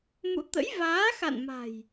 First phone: m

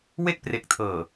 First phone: w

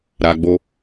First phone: ɾ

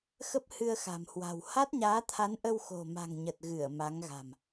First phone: x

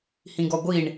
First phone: h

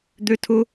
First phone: d̪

